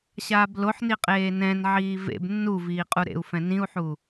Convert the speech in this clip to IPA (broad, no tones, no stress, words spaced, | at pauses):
ɕaːbloħni qʼeːnɛ̃nʕiː vḛb nːu viːqʼuɾḛu̯fɛ̃ nĩu̯ħu